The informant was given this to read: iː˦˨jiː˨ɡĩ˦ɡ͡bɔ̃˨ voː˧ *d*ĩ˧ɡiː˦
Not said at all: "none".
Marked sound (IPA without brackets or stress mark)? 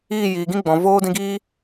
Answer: d